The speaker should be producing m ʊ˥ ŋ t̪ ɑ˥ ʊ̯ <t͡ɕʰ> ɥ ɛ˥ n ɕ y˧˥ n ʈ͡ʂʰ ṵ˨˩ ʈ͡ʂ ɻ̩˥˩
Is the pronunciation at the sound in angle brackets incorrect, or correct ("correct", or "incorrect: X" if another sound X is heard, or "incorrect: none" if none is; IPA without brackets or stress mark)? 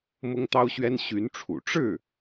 incorrect: ɕ